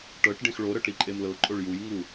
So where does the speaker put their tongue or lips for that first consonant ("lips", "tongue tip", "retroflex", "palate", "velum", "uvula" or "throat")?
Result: retroflex